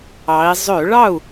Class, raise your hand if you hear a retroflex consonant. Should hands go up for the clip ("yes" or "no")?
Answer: yes